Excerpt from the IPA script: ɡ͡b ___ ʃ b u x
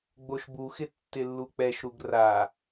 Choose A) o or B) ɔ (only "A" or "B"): A